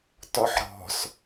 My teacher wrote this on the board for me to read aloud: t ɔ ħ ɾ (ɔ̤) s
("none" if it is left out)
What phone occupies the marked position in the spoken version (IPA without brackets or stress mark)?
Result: ɔ̤